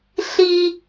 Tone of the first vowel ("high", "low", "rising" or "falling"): high